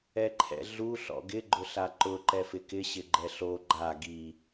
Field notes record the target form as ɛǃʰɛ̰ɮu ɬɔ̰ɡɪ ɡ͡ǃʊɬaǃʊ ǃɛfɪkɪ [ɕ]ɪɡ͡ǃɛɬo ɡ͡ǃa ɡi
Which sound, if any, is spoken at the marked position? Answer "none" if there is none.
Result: ɕ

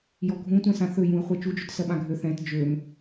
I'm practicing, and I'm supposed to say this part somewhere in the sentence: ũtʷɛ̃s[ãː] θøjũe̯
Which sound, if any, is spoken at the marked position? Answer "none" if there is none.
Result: ã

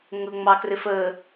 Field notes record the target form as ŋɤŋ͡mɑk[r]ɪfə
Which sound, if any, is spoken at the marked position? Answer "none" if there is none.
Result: r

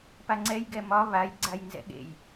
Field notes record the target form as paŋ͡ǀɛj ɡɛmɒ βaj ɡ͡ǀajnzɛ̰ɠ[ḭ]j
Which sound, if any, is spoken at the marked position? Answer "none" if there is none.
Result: ḛ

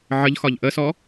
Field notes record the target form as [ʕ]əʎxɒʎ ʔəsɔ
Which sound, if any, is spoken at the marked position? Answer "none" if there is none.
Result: ʕ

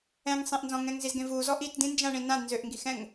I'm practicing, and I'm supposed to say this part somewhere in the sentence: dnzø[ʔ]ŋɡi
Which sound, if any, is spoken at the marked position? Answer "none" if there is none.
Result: ʔ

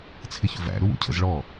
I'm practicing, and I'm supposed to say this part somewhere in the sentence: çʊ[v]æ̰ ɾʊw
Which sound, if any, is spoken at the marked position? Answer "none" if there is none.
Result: v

